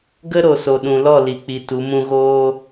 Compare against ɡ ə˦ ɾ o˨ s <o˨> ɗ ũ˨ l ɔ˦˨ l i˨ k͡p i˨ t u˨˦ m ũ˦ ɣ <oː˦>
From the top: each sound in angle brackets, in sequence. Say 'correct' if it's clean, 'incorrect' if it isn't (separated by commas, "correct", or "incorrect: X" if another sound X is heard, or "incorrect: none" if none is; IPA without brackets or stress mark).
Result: correct, correct